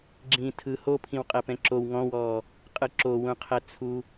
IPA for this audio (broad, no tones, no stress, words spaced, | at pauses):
ɡ͡ǁĩːtʰɯ hopʰĩw qʼɛpɛ̃ǁow ŋɔ̃wɔː | qʼɯǁowũqʰɛ t͡sʰu